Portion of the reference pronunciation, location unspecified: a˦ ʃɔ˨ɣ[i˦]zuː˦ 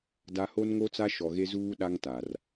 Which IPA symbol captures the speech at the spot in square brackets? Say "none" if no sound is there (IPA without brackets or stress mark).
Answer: e˦